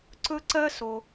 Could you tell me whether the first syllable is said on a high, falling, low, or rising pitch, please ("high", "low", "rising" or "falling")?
high